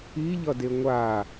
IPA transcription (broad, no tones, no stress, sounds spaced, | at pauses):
i ʎ ʌ d e ŋʷ a